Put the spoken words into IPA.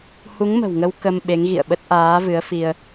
h u˨˦ ŋ m ə̤˨˩ w ŋ ə˧ w k ə˧ m ɓ e˨˦ ŋ ɣ ḭ˧˨ ə̯ ɓ ə˦˥ t̚ ʔ aː˨˦ v ɨ˨˦ ə̯ f i˧ ə̯

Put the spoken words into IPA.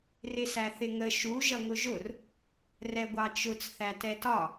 r ɪ s æ θ ɪ ŋ ə ʃ u ʒ ʌ ŋ ʊ ʒ ʊ r | r ɛ ɡʷ ɑ t͡ʃ ʊ t͡s θ æ t ɛ t ɒ

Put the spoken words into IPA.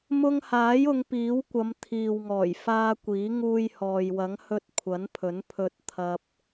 m ʊ˧ ŋ h aː˨˥ j ʊ˨˧ ŋ p iː˨˥ w kʷ ɐ˨˧ m t̪ʰ iː˨ w ŋ ɔː˨˩ j f aː˧ kʷ iː˨˥ ŋ uː˧ j h ɔː˨ j w ɐ˨˥ ŋ h ɵ˧ t̚ kʷʰ ɐ˨˥ n pʰ ɵ˨˥ n pʰ ɵ˧ t̚ t̪ʰ ɐ˧ p̚

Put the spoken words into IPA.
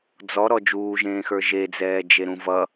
d͡z ɔ ɾ ɔ d͡ʒ uː ʒ ẽː x ə˞ ʒ e d͡z ɛː d͡ʒ e ɾ ũ v ʌ

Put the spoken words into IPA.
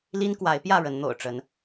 l i˦ n k w a˨˦ ɪ̯ p j ä˥˨ ɻ ə˨˦ n n̪ o̰˨˩ ʊ̯ ʈ͡ʂ ə˨˦ n

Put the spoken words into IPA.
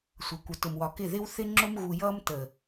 sʷ ʌ˨ kʷ ʌ˨ t ʊ˨ m w ɒ˨ k ɪ˦˨ ð ɪ˦ w θ ɪ˦ ŋ͡ǁ ʊ˦ m ɣ u˨ j ʌː˦ m t ə˨

